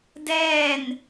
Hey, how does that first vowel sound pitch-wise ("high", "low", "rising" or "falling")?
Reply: falling